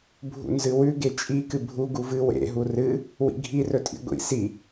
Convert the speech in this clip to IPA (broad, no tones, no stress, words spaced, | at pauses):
bʱṵnzɨwʉ ɡet͡ʃʼi kɨbʱu ɡuvɨ wḛ ɦurɨ | wḭɡʱi rɵtʼḭɡʷḭ si